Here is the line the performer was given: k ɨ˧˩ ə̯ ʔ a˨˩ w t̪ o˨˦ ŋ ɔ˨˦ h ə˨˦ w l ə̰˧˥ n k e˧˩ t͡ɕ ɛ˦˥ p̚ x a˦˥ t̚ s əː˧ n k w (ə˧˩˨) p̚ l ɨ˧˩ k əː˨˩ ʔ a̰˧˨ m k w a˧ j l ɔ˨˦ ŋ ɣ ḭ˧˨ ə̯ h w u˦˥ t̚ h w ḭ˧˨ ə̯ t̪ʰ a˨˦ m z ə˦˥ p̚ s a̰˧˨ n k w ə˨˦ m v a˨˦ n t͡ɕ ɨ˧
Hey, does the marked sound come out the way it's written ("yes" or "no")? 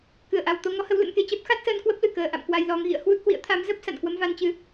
no